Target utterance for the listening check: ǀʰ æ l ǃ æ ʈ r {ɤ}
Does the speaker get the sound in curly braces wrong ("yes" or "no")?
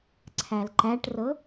no